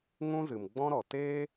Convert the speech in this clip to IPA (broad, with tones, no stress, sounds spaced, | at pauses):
ŋ ũ˦ z ɨ˨ m ɡ͡b ɔ̃˦ ɾ ɔ˨ t eː˦